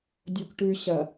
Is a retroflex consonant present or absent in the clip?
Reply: present